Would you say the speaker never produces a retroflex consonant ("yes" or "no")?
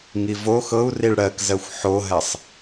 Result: no